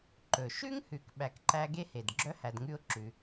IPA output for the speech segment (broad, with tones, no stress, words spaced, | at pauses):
ǃɵ˩ʃʉ˥ŋhʉ˨k ɓæ˨kǃæ˦ɡe˥he˩d ɡ͡ǁœ˥hæ˨dŋʉ˦ʊ̯ ǁʉ˨